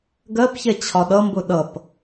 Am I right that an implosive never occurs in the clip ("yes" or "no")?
no